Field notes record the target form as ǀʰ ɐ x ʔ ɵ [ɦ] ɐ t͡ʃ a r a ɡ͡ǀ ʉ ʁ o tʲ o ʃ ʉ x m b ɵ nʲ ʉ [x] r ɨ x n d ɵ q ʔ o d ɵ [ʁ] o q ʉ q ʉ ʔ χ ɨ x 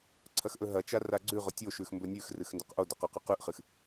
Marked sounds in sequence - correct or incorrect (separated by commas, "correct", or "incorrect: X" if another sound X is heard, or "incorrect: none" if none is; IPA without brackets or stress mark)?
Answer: correct, correct, incorrect: q